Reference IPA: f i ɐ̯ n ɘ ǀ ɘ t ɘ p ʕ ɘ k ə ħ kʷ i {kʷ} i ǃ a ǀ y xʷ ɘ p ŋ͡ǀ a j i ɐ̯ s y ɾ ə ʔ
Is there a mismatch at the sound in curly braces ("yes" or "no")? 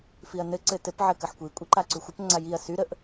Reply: yes